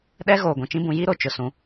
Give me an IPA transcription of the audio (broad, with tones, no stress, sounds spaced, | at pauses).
ɗ ɛ˦ ɣ oː˨ ɡʷ ũ˨ t͡ʃ ĩ˦ b ũ˨˦ j i˦ ɾ o˨ t͡ʃ ʊ˨ s ũ˨˦